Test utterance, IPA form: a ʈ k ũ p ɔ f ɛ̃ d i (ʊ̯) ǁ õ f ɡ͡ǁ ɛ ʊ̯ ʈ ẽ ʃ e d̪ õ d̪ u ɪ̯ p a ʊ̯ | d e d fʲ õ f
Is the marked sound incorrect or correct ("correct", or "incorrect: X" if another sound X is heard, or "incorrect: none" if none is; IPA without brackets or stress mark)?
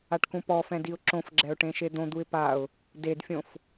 correct